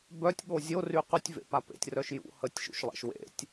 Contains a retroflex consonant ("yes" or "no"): no